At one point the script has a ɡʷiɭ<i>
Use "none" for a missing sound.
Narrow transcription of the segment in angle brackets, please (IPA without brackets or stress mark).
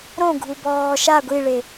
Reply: e